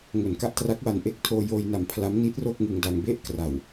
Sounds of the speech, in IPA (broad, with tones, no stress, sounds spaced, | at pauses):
ŋ o˨˩ n k a˥˩ ʔ t r a˦˥ k̚ w a˧ n ʔ e˦˥ k̚ tʰ oː˧ j oː˧ j n a˨˩ m pʰ l a˦˥ m n i˦˥ t̚ r o˥˩ k̚ ŋ ɯ˧ ŋ d a˧ ŋ b e˥˩ ʔ k r a˨˩ w